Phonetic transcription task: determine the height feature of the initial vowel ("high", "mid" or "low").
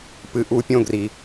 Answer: high